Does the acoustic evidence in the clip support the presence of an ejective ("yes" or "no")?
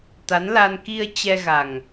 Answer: no